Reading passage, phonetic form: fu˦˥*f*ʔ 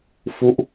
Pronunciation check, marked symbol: incorrect: none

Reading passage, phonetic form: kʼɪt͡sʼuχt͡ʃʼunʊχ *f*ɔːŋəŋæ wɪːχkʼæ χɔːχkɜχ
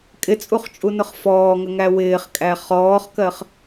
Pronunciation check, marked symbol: correct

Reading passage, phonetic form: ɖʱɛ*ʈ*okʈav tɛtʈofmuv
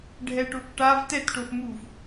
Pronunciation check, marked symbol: correct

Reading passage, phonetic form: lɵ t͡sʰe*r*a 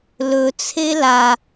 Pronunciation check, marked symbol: incorrect: l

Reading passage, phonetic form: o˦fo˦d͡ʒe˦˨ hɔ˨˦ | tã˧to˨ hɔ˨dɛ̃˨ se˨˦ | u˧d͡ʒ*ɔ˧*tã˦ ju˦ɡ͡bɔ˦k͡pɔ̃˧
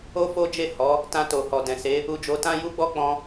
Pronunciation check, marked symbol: incorrect: o˧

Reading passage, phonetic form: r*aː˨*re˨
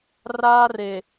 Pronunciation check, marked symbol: incorrect: aː˦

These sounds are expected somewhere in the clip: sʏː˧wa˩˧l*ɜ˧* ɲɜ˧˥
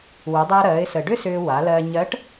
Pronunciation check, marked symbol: correct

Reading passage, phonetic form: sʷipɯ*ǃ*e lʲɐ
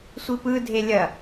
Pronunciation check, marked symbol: incorrect: dʱ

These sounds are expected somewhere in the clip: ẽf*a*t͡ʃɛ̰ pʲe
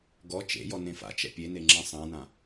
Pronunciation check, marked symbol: incorrect: a̰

